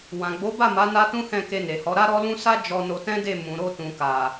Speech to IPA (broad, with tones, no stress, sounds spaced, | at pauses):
w ã˨ ɡ͡b o˨˦ b a˦˨ m a˨˦ n a˦ t ũ˦ h ɛ̃˦˨ k e˧ n e˨ h ɔ˨˦ ɾ a˦ ɾ ɔ˦ l ũ˦ s a˦ d͡ʒ ɔ˧ n o˧ t ɛ̃˦ d e˦˨ m ũ˨ ɾ o˧ t ũ˨ k a˨